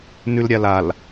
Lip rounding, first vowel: rounded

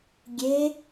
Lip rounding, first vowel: unrounded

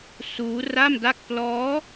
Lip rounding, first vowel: rounded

